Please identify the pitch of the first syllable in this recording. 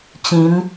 rising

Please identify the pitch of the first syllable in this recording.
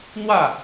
falling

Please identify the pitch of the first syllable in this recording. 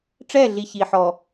falling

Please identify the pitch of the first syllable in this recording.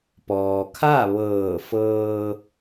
low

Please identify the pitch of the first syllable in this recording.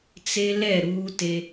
high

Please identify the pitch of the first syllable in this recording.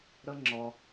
high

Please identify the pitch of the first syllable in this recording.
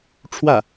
falling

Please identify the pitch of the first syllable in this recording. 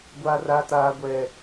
high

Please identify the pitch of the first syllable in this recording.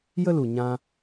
high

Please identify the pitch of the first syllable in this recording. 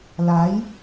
rising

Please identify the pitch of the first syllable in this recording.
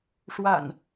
low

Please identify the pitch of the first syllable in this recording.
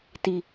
low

